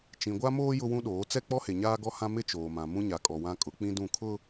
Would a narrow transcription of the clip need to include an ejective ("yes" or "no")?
yes